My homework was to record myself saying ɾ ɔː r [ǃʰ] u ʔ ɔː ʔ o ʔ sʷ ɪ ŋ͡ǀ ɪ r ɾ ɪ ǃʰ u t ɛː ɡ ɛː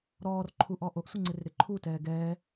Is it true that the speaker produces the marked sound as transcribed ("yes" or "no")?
yes